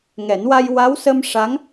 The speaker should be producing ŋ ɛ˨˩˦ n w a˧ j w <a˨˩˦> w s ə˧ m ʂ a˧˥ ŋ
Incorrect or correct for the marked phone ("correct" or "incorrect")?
incorrect